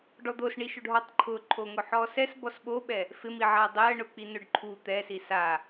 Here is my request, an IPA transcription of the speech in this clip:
ɖ ɔ d̪ o s ɳ i ʃ o ɖ ɦ ɔ tˤ ǃʰ ʊ ǃʰ o ŋ ʊ ħ ɔ s ɛ s b ɔ s ɓ o ɓ ɛ | f ɪ m i ʕ a dˤ ɛ ə̯ ɳ ʊ k͡p i n ʊ ɖ ǃʰ u t̪ ɛ s i s a

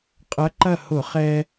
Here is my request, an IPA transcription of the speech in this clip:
qʼ ɐ˧˥ ǃ ɐ˥˨ h ʊ˧˩˧ χ ɛ˧

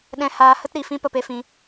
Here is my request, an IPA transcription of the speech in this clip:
ɗ ɛ̃˧ h aː˧ h ə˦ t ɾ i˨ f ĩ˦ p ə˧ p e˦ f ĩ˧

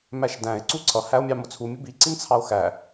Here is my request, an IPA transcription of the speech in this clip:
m æ ʃ d æ̃ e̯ ǀ u ǀʰ ʌ h æ o̯ mʲ ɑ m ʊ t͡sʰ u mʲ ʊ b i ǀ i n t͡sʰ ɑ o̯ x æ

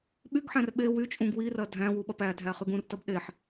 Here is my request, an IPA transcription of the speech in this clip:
ɓ y ɡ ħ æ̃ r ɓ e w y t͡ʃʼ ũ ɡ w i r ɐ dʱ æ̃ w u ɓ ɐ p æ dʱ æ χ y ɡ ũ r t ɐ b ɗ e ħ

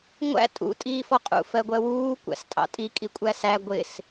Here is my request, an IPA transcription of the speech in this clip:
ŋʷ æ̰ tʼ ṵ tʼ iː f ɔ qʼ ṵ f ɜ ɡʷ ɜ w uː kʷ æ̰ s tʼ ɑ̰ tʼ i kʼ i kʷʼ æ s æ ɡʷ ɪ s

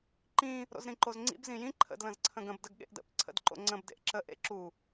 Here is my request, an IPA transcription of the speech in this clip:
ǃ ĩ | ɾ o̰ z ɾ ĩ ǃ o z ŋ͡ǀ ḭ b z ĩ j ĩ ǃʰ ə̰ d l ə̃ z ǀʰ ə̃ ɡ ə̃ b d ə ɡ ɠ ḛ ʔ d ə̰ p ǀʰ ə̰ d ǃ o̰ ŋ͡ǀ ə̃ b d ḛ ʔ ǁ ə ʔ ḛ ǁ u

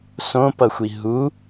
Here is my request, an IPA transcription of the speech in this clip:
s õ p ʌ xʷ i ɦ u

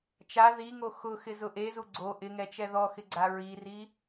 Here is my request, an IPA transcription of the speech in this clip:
t͡ʃ a ð i ŋ o x ʊ x ɪ z ʊ ʔ e z u ɡ͡ǀ o ʔ ɪ ŋ ɛ t͡ʃ ɛ ð ɔ x ɪ ɡ͡ǀ a ɹ i r i

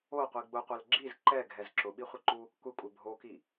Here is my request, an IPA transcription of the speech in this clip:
o qʷ i ɡ͡b ʊ qʷ ɛ l ɡ͡ǁ i z ǃ ɛ ɡʱ ɛ z ǁ ʊ ɓ i χʷ ɪ ǃ u | kʷ ɪ kʷʼ ɪ bʱ o k i

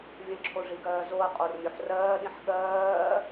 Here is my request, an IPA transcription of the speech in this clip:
vʲ ə̃ ǁʰ o ʐ i ɡ ɜː z o ɐ̯ qʼ o r mʲ o ħ r ɜː ɗ ĩ ħ ɠ ɜː

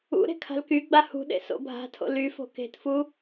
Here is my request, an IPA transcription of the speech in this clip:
ṵ ɾ e̤ kʰ a̤ l k y ɡ͡b a h ṳ ɗ ḛ s o̰ bʱ a̤ tʰ o̰ l y f o̤ k e̤ t f u

